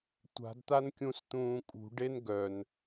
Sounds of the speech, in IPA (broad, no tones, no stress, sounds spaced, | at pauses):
tʷ a̤ d t̪ a n kʲ ũ s t̪ ũː kʼ ṳ ɖ e n ɡ œ n